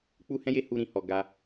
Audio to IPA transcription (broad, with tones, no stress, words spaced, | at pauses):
k͡pu˦hɛ̃˦je˦ hu˦ɾĩ˧hɔ˧ ɡa˦